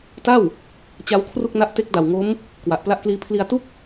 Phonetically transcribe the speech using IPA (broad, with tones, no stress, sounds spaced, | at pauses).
t a˥˩ w | t͡ɕ a˦˥ w kʰ r u˥˩ k̚ n a˦˥ ʔ t e˦˥ k̚ d a˨˩ w ŋ o˦˥ m | k w a˨˩ ʔ p l a˦˥ ʔ k l iː˦˥ pʰ l i˧ a̯ t u˥˩ k̚